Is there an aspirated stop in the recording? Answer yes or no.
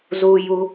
no